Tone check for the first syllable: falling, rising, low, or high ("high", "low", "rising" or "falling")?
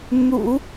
low